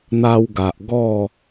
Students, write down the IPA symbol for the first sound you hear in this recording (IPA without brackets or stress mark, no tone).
n̪